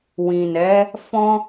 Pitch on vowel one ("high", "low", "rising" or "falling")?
low